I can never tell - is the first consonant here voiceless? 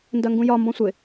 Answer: no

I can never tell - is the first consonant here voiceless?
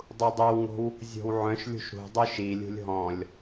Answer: no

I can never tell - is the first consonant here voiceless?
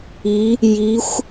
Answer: no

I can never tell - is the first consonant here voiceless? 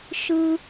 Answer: yes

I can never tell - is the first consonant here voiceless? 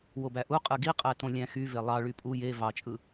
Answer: no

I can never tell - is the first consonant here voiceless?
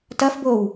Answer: yes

